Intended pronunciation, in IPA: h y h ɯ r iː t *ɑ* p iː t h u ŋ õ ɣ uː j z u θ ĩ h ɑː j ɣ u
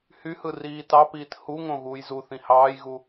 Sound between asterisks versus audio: correct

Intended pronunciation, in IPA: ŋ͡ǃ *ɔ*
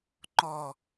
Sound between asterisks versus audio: correct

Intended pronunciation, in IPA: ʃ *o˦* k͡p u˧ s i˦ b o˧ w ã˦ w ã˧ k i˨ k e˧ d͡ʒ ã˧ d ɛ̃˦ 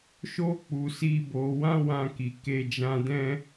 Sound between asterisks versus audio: correct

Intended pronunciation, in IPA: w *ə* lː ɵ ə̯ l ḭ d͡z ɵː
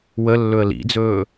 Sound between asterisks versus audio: correct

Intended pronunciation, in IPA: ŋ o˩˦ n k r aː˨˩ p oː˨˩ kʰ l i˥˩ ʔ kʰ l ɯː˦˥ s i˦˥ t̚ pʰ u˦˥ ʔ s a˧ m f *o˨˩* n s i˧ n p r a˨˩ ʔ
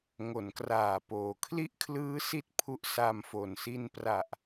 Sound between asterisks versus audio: correct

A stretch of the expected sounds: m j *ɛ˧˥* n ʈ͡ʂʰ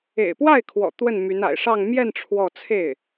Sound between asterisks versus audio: incorrect: ɛ˥˧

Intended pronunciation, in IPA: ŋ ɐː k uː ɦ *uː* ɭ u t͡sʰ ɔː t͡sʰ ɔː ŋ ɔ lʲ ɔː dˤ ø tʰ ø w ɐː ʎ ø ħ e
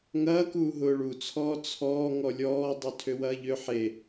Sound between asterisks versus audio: incorrect: ʊː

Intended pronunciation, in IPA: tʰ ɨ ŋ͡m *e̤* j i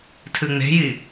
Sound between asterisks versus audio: correct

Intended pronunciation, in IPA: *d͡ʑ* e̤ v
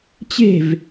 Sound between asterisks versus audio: incorrect: t͡ɕ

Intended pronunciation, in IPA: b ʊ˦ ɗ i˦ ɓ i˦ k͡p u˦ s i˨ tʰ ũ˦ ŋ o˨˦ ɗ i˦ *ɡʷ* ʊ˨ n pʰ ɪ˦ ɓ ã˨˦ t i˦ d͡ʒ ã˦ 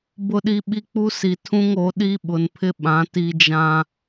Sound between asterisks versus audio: incorrect: ɓ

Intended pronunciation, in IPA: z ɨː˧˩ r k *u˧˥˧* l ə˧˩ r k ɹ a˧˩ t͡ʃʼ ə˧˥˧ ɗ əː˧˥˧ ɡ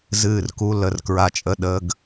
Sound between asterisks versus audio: correct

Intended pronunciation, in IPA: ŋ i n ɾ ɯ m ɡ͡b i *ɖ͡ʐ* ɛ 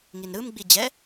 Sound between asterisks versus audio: incorrect: d͡ʑ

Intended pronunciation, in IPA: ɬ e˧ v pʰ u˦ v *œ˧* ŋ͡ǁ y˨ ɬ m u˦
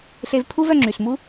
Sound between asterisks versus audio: correct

